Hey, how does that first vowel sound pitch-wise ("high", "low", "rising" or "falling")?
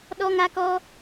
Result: high